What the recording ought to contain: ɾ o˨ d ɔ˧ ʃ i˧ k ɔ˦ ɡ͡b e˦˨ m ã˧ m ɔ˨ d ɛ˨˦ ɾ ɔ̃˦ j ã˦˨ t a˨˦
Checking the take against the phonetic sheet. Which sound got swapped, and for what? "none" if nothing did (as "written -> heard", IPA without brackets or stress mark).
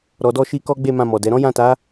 o˨ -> ɔ˨